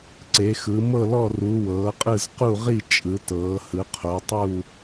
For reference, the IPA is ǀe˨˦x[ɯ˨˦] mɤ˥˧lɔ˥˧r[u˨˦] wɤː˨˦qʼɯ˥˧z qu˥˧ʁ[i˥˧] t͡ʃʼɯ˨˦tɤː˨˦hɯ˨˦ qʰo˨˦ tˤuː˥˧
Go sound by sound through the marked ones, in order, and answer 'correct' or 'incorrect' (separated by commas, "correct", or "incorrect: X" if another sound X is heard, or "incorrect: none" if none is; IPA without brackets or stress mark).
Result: correct, correct, correct